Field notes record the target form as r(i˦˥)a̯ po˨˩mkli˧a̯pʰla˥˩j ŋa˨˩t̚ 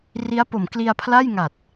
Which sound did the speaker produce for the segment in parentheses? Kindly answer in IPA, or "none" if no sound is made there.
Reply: i˦˥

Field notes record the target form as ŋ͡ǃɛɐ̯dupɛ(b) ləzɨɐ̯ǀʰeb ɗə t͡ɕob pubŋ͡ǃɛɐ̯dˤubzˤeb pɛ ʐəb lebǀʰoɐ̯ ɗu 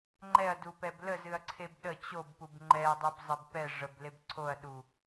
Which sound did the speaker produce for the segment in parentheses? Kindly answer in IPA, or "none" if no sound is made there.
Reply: b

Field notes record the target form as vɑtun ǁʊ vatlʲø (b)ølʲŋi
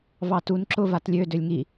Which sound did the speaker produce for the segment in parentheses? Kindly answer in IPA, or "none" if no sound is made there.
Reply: d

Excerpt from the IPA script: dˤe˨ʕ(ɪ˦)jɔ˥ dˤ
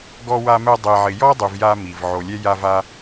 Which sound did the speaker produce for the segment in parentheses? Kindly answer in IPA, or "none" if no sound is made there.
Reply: ɪ˨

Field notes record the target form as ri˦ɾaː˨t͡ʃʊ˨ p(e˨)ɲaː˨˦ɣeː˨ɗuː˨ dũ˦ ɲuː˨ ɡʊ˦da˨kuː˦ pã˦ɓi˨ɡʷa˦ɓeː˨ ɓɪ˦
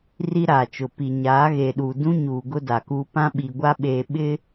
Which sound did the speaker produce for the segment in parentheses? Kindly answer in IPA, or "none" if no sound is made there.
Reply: i˨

